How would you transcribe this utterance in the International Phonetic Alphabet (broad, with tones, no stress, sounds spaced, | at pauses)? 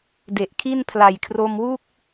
d e˨˩ ʔ kʰ i˥˩ n pʰ l a˨˩ j kʰ r o˧ m w u˥˩ k̚